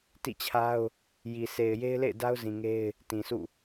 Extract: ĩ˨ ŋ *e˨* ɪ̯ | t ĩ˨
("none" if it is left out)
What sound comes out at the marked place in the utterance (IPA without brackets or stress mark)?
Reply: e˦